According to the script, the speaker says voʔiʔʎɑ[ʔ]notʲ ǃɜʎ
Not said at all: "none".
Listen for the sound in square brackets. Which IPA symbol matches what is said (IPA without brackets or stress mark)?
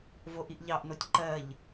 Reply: ʔ